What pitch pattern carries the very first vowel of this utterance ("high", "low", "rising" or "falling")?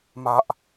low